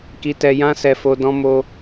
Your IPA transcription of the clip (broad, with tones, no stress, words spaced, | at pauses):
ki˧tɛ˧ jã˦sɛ˧fo˧ dɔ̃˦mo˦